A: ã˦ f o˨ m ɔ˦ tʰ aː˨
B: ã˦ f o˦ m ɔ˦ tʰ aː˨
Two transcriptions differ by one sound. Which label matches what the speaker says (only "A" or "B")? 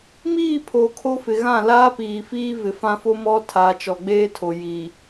B